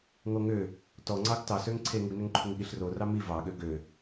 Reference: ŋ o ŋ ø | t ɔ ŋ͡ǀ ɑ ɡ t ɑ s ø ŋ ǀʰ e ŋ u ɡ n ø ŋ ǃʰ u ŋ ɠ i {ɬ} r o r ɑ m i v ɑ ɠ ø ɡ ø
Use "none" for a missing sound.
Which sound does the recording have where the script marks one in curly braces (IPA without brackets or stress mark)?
ɬ